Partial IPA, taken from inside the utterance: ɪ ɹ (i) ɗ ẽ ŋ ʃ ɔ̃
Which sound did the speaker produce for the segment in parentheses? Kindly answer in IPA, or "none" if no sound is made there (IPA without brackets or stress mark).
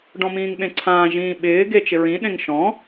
ĩ